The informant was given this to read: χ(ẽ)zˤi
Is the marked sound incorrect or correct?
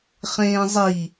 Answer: incorrect